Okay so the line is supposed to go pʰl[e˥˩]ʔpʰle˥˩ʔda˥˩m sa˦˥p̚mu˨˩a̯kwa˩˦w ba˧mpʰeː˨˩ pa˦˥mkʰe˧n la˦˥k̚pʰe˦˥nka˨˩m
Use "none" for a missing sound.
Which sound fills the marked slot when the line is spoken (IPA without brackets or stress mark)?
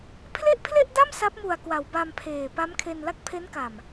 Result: e˥˩